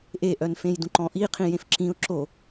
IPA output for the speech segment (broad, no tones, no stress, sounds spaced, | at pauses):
ʔ e ʔ œ n f ẽ j d ũ ǃ ɔ̃ ʔ i qʰ ĩ j ẽ f ǁ ĩ ʊ̯ ǁ o